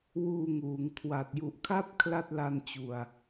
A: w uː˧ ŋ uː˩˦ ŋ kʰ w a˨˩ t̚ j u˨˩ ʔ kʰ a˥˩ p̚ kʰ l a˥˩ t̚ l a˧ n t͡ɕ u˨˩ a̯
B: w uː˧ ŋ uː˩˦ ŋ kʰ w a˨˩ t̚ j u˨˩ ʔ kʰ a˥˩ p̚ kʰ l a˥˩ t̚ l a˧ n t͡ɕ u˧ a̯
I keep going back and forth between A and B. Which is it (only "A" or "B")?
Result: A